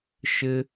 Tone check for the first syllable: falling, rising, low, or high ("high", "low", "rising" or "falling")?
high